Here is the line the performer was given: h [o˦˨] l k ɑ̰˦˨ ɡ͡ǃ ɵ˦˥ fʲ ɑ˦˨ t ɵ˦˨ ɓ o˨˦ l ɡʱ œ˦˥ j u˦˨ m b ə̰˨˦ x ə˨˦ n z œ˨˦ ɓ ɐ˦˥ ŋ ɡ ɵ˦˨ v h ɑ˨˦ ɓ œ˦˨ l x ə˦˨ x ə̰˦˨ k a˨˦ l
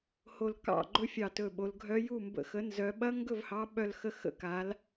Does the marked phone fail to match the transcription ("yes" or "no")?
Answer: no